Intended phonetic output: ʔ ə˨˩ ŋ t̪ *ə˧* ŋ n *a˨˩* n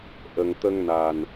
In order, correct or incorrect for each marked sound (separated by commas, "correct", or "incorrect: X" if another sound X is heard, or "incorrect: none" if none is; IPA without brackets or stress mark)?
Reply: correct, correct